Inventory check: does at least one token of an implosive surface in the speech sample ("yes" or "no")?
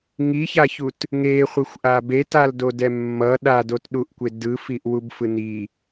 yes